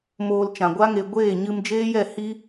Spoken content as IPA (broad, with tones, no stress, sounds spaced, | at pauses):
m oː˧ l t͡ʃ ã˨ ɡʷ a˦ ŋ e˧ ɡʷ eː˦˨ ɲ ɨ˧ m d͡ʒ eː˦ j ɛ˦˨ h i˦